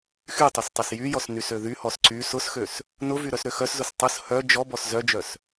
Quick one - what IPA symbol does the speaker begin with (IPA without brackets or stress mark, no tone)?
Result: x